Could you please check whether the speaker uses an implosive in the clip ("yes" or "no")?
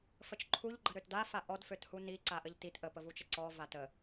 no